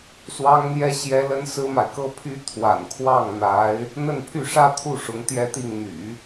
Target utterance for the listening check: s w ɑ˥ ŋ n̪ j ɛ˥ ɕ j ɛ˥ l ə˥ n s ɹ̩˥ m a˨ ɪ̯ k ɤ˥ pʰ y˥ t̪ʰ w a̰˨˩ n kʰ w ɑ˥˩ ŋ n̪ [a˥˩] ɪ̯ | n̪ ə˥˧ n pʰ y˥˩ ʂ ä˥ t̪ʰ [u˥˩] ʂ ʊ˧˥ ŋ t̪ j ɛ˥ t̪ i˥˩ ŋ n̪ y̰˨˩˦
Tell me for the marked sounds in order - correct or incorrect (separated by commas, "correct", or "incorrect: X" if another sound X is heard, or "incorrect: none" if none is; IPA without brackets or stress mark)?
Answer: incorrect: a˧˥, correct